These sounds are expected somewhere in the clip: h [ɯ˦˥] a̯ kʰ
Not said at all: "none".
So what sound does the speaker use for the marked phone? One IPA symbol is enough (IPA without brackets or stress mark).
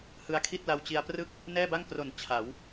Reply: ɯ˦˥